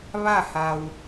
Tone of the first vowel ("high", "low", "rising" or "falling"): falling